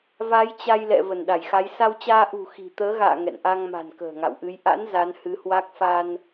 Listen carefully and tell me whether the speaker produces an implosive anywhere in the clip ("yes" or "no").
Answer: yes